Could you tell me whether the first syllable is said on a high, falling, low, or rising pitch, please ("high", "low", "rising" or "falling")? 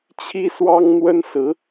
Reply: high